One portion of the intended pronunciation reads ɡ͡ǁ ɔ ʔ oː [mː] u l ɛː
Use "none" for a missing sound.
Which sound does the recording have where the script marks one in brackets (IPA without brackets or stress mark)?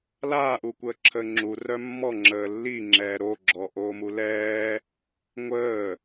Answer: m